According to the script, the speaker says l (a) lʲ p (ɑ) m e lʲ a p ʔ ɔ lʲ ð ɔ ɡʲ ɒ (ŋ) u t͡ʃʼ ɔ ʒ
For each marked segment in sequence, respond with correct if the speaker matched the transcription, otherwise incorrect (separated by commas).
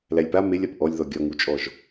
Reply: incorrect, incorrect, correct